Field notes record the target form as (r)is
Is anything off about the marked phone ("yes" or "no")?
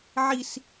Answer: yes